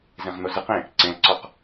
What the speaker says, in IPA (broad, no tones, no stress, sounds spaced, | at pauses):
z ẽ ʁ n̪ o z ɨ q ẽ | ǀ ẽ l ǀ ɔ q